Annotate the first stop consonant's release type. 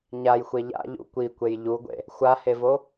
plain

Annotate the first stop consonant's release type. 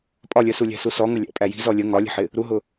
ejective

